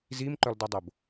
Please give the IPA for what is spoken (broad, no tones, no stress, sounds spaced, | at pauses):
z i m ǃ œ lˠ d e dˤ o b